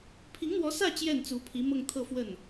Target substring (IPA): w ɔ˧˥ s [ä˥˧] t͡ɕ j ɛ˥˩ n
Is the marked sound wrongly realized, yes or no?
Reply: no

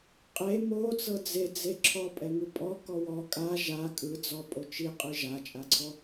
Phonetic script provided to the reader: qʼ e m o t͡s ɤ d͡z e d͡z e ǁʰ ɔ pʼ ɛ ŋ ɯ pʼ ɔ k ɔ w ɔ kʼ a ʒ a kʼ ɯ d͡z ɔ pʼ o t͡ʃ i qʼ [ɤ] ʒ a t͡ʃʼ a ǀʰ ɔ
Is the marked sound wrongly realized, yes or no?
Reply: yes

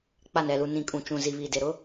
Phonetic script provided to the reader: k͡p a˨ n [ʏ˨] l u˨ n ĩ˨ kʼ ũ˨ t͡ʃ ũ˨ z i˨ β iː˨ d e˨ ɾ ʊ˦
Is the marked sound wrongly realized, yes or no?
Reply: yes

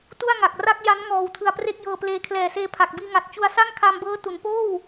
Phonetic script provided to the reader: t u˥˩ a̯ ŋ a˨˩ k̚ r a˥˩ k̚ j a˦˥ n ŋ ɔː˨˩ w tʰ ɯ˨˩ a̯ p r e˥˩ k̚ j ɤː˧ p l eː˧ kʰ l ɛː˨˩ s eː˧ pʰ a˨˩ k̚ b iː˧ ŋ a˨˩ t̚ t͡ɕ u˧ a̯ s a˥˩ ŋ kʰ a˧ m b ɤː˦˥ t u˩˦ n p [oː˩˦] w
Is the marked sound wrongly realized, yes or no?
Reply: yes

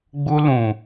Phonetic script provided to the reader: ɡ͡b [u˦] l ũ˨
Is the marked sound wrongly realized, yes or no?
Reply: no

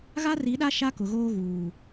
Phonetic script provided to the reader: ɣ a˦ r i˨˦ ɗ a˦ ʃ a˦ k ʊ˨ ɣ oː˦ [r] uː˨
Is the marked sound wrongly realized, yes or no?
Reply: yes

